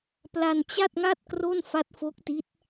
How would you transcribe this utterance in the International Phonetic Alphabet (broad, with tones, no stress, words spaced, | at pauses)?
pla˧n t͡ɕa˥˩t̚ŋa˥˩t̚ kro˥˩nfa˦˥t̚fo˦˥k̚ti˦˥t̚